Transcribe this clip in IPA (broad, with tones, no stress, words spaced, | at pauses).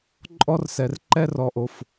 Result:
ǃʼɔ˦rsɛ˨r ǃɛ˦rɔ˨ʔo˨f